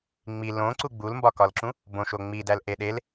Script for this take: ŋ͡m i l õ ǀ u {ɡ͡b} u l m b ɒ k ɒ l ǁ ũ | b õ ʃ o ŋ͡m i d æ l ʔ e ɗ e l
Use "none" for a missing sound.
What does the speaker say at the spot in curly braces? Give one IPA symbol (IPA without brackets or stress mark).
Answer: ɡ͡b